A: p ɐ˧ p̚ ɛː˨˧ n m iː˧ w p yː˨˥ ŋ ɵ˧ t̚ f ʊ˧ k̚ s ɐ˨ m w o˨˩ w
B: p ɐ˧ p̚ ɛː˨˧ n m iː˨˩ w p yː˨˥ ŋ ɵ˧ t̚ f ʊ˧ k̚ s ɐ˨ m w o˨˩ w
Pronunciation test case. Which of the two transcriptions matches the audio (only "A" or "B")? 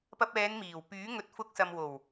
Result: B